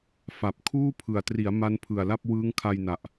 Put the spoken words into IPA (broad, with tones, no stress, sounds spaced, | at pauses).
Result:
f a˨˩ p̚ kʰ uː˥˩ pʰ ɯ˨˩ a̯ t r i˩˦ a̯ m a˦˥ n pʰ ɯ˨˩ a̯ l a˥˩ p̚ w ɯː˦˥ ŋ kʰ a˧ j n a˨˩ ʔ